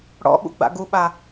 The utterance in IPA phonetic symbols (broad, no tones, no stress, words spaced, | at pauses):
ɽɔ̰ɓṵɡ͡ba̰ ɡuɓa